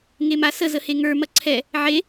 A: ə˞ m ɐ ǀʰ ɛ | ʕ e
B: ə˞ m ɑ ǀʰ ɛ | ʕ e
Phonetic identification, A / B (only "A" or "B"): A